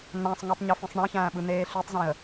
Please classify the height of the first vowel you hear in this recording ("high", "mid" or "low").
low